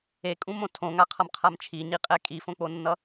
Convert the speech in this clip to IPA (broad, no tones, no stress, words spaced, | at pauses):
ekʼũmõ tʰõŋaqʰʌmqʰam t͡ʃʰiɲiqʼɛ kʼifõk͡ponːʌ